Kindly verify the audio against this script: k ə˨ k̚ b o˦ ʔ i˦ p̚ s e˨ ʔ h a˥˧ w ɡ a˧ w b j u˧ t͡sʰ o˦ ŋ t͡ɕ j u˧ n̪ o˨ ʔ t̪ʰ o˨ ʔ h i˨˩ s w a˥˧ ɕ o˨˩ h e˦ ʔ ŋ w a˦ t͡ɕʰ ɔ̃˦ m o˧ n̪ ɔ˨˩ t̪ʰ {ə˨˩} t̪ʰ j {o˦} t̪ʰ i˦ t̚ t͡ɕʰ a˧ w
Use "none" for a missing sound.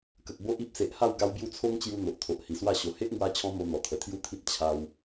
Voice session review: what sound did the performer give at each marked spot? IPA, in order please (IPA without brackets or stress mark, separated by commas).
ə˨˩, u˦